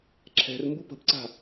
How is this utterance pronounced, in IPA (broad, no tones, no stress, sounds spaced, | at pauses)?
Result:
ǁʰ ɛ̤ r m b u p ə̤ b ǀ a̤